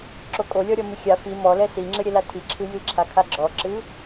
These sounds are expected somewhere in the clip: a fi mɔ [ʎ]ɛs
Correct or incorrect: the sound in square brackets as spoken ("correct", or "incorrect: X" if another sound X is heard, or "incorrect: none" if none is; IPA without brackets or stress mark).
incorrect: l